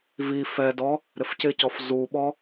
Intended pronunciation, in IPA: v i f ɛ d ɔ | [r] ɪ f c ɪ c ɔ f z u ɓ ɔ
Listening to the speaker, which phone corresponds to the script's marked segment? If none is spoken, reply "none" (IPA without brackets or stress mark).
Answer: ɾ